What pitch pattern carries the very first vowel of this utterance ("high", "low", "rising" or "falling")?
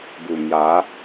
low